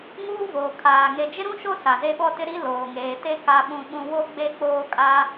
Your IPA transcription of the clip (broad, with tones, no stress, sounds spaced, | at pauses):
ŋ uː˦ v oː˨ kʰ aː˨ ŋ e˨ d͡ʒ ɪ˦ ɾ ũ˦ ʃ o˦ s a˨ z e˦ ɓ ɔ˦ t ɪ˦ ɾ i˦ l oː˨ ŋ eː˨ t e˦ k a˦ ɓ ũ˦ ɓ ũ˦ w o˦ ɡ͡b e˦ k͡p oː˦ kʼ a˦